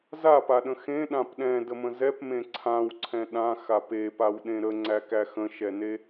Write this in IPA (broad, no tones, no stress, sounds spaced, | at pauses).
z a p a ɗ ə̃ x ẽ ɗ ã p ɗ ɛ̃ d ə m ə̃ z ɛ p m ẽ ǀʰ ã w ǀʰ ɛ̃ ɗ ã x a p e p a w ɗ ẽ ɾ ə ŋ͡ǀ æ k æ x ə̃ ʃ ɛ n e